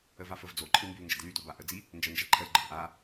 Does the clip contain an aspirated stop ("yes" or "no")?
yes